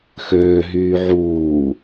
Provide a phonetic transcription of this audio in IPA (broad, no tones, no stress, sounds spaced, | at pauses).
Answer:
x øː ɦ yː ʕ uː